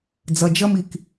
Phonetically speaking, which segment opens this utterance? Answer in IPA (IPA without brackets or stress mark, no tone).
d͡z